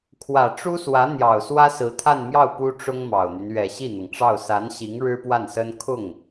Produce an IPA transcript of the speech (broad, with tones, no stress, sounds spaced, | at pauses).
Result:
kʰ w ä˨˩ ʈ͡ʂ u˥ s w ä˧˥ n̪ j ɑ˨˩ ʊ̯ s w ä˥ s ɹ̩˧˥ t̪ʰ a˥˧ n m j ɑ˥˩ ʊ̯ p u˥ ʈ͡ʂ ʊ˥ ŋ m ɑ˨˩ ʊ̯ n̪ y˦ n ɥ ɛ˨˩ ɕ i˥˩ n̪ ɤ˩ ŋ ʈ͡ʂ ɑ˥˩ ʊ̯ s a˧˥ n ɕ i˧˥ ŋ ɻ ɻ̩˥ p w a˥˩ n s ə˥ n kʰ ʊ˥˩ ŋ